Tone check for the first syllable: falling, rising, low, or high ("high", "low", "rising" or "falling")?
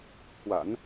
low